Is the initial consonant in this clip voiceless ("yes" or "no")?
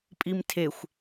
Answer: yes